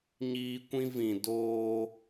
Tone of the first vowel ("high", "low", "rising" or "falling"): high